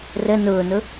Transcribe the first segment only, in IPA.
r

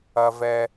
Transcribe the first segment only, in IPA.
ɐ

